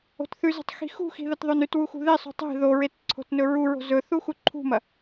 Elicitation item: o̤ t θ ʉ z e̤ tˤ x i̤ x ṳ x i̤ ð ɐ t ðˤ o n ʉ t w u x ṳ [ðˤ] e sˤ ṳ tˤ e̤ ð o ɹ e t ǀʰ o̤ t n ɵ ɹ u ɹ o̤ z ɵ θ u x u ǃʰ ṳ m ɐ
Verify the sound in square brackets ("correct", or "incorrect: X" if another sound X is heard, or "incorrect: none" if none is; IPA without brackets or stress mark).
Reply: incorrect: ð